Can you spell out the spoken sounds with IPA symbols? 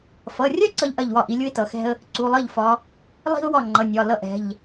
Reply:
f ʌ˩˧˩ rʲ ɐ˥ ǀ ʌ˥ ʎ ʔ ɐ˥˩ ʎ w ɒ˥˩ ʔ i˨˦ lʲ u˥ ɪ̯ t ʌ˩˧˩ x ɛ̤˥ ə̯ | ǀ u˩˧˩ lˠ ʌ˥˩ ʎ f ɒ˨˦ | lˠ i̤˥ ʊ̯ w ɒ˥˩ ŋ͡ǃ ʌ˩˧˩ nʲ ɒ˩˧˩ l ʌ˥ ʔ ɛ̤˩˧˩ ʎ

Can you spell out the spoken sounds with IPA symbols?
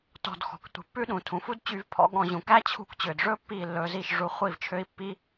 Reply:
t ɔ̤˧ d x ɔ̤˨ k tʷ i̤˨ pː ʉ˦ ɗ ũ˨ tʰ ũ˨ f u˦ d t͡ɕ y˧ v pʰ ɔ̰˧ ɠ ɔ̃˧ ʑ ũ˨ k æ˦ t͡ɕʰ ṳ˧ k t͡ɕ ø˨ d ʐ ɵ˦ pː i˦˨ lː ɵ˧ z i˦˨ ʃ ʐ u˧ χʷ i˦˨ v t͡ʃʰ ø˦ i̯ pː i˦

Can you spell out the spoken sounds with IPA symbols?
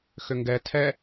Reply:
x ʏ ŋ ɡ ɛ tʰ ɛ

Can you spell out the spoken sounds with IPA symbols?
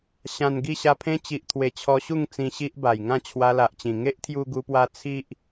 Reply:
ɕ ã˨˩ n ɡ i˥˧ ɕ a˧ pʰ ẽ˦ t͡ɕ i˨ ʔ t̪ʰ w e˨˩ t͡ɕʰ ɔ˧ ɕ u˥˧ ŋ t͡s ĩ˧ ɕ i˦ ʔ b a˨˩ j ŋ ã˥˧ t͡ɕʰ w a˧ l a˨ ʔ t͡ɕ ĩ˨˩ ŋ e˦ ʔ t̪ʰ j u˧ ɡ u˧ p w a˧ t͡sʰ i˦ ʔ

